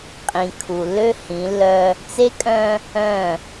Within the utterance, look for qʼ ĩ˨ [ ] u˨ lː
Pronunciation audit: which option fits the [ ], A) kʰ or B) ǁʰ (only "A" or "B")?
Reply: A